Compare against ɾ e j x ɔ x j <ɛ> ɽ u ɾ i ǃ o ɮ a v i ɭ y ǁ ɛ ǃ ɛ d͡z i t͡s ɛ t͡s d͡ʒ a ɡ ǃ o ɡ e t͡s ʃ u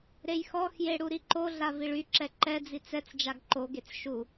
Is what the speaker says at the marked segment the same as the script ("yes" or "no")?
no